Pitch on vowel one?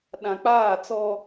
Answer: low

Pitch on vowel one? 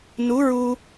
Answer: rising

